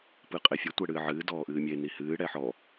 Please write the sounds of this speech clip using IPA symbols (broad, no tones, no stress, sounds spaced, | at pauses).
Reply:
p ɨː qʼ e fʲ e tʷ ɛ ɽ ɨː ʕ ɨː d ɔː ʔ ɨː mʲ e n i h ɨː ɽ ɛ ħ ɔ